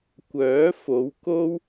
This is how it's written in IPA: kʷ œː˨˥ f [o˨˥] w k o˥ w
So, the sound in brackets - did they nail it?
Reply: no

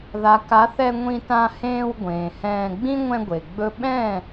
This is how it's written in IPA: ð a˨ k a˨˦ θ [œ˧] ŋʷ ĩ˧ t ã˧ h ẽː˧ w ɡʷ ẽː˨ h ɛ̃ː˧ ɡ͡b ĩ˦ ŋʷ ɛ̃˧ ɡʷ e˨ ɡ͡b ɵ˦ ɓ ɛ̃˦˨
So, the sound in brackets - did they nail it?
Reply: no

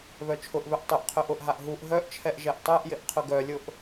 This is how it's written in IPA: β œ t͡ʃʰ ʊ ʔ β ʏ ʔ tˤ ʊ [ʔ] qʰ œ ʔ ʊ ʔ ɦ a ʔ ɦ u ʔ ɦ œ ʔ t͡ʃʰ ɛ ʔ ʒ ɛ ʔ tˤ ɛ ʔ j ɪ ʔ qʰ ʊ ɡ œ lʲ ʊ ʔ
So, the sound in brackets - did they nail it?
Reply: yes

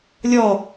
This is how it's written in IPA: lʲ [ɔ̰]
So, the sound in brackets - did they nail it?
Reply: no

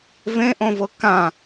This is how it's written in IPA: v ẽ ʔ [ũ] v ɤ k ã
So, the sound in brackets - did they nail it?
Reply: no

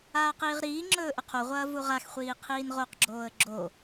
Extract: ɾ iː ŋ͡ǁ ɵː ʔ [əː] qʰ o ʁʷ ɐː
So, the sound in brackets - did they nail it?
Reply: no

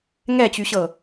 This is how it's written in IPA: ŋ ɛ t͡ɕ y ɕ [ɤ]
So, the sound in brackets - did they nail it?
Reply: yes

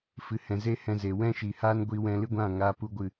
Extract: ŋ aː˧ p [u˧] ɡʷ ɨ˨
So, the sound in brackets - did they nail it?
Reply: yes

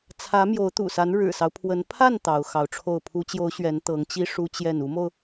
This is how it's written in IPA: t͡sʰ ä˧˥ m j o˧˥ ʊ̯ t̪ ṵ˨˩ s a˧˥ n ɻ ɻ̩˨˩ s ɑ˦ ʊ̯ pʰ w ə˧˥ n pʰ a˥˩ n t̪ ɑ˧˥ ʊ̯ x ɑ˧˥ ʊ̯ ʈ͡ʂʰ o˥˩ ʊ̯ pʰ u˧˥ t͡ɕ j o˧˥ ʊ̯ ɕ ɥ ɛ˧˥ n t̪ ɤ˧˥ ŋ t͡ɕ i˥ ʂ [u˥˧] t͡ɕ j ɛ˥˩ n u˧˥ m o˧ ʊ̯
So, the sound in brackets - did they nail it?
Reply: no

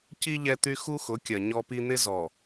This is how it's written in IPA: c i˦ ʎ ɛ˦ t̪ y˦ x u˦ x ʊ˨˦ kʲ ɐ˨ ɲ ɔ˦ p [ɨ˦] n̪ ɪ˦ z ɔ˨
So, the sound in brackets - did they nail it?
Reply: no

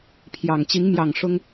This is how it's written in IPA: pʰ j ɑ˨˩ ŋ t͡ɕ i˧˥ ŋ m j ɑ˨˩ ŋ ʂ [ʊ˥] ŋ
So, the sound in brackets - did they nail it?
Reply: yes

